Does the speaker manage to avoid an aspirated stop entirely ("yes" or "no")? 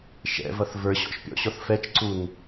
yes